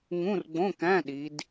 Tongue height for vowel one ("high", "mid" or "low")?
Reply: high